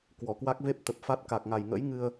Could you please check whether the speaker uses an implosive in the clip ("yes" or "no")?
no